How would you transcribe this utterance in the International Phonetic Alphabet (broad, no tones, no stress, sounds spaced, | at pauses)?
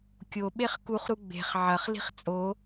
kʲ o ɓ e χ k u χ ɾ u ɡ͡b e̤ χ ʕ ɐ χ l i̤ χ t͡sʼ o